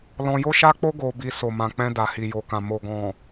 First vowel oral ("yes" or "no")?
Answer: no